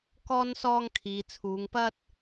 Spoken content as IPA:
k ɔː˧ n s ɔː˧ ŋ kʰ iː˨ t͡sʰ uː˨˧ ŋ p ɐ˧ t̚

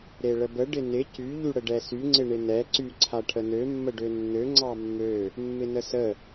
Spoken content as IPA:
ɾ e ɭ ə b ə ɖ ɪ n ɪ c y ʎ y ɽ ə ɖ ɛ s y ŋ͡ǀ ɪ ɳ ɪ n ɛ ǀ y ǀʰ a ʈʰ ə n ø mː ə ɖ ø nː ø ŋ͡ǀ ɑ mː ø | mː ɪ n ə s ə

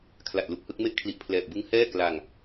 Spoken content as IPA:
kʰ l a˨˩ t̚ l u˨˩ k̚ h ɯ˥˩ k̚ m e˥˩ ʔ kʰ l i˨˩ ʔ pʰ l ɛː˨˩ p̚ b ɯ˦˥ ŋ h ɛː˥˩ k l a˧ ŋ

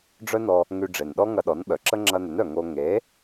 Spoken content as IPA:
ɖ͡ʐ œ˥ n ɔ˧ | ŋ y˧ ɖ͡ʐ e˨˩ n ɗ ɔ˥ ŋ ɐ˧ ɗ ɔ˩˥ n ɓ œ˨˩ ǁ ə˥ ŋ͡ǁ ɐ˧ n ʏ˩˥ n œ˨˩ ŋ o˧ ŋ e˩˥

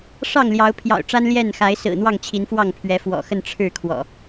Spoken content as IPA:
ʂ ɑ˥˨ ŋ l j ɑ˨˦ ʊ̯ pʰ j ɑ̰˨˩ ʊ̯ ʈ͡ʂ a˦ n l j ɛ˥˨ n x a˨˦ ɪ̯ s ɹ̩˨˩ n̪ w ɑ˥˨ ŋ t͡ɕʰ i˨˦ n f w ɑ˥˨ ŋ pʰ ɥ ɛ˨˦ f w ɔ̰˨˩ x ə˥˨ n ʈ͡ʂʰ ɻ̩˥˨ kʰ w ɔ̰˨˩

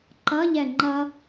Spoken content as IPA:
ǃ ʌ ʎ ɛ ŋ͡ǃ ʌ

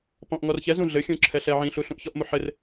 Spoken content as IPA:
p ɔ̃ ʔ ŋ ɔ r ç ɛ z ũ ɮ ɘ xʲ ũ ǁʰ ɛ ɬ ɛ ʕ ĩ ɬ u ɬ ũ ʔ ç ɔ ʔ m u ħ ɘ r

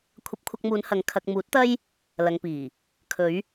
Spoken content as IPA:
kʷʰ ɐ˧ p̚ kʷʰ ɐ˧ k̚ m uː˨˧ n h ɐ˨˧ ŋ kʰ ɐ˨ k̚ m uː˨˥ t̚ t̪ ɐ˥ j | l ɐ˨ ŋ p iː˨˩ | kʰ ɵ˨˧ ɥ

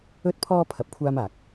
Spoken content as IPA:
ɵ˥ t̚ pʰ ɔː˥ pʰ ɐ˧ p̚ kʷʰ aː˥ m aː˨ k̚

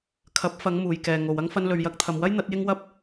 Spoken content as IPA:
kʰ ɐ˨˥ p̚ f ɐ˨˧ ŋ m uː˨ j k ɛː˨ ŋ o˨ w ɐ˥ ŋ f ɐ˧ n l ɵ˨ ɥ j ɐ˧ k̚ t̪ʰ ɐ˨ m w ɐ˥ j n̪ ɐ˨˥ t̚ j ɪ˥ ŋ w ɐ˥ p̚

